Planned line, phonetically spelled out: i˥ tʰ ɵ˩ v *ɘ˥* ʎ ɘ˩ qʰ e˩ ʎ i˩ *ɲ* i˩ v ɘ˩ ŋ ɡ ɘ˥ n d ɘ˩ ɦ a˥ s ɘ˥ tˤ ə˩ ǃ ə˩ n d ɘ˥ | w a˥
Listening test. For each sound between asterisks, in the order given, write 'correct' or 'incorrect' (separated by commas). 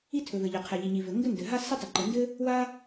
incorrect, correct